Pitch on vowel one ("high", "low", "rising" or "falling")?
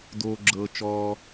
high